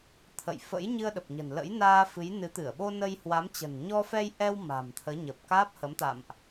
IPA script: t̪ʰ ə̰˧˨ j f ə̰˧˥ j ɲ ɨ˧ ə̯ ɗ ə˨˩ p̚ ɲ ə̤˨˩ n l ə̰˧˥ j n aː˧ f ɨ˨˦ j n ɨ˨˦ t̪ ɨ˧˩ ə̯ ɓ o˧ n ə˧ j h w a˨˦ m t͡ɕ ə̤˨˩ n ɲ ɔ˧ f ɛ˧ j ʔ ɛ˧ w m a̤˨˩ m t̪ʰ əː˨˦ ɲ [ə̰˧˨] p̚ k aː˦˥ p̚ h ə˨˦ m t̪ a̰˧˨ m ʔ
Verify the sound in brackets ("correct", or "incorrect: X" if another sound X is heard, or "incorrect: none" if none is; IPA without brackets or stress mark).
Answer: incorrect: ə˨˩